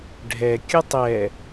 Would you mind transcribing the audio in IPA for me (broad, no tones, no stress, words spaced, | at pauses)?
ɖʱɛ kʲʊtˤɛ